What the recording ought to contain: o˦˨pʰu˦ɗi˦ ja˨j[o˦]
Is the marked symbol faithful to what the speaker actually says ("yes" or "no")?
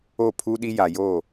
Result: no